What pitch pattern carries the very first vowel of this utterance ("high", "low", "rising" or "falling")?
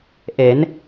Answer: rising